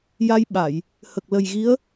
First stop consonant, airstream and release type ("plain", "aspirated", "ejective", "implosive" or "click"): implosive